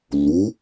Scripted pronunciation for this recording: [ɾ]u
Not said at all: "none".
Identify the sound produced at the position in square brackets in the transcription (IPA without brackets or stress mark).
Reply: lː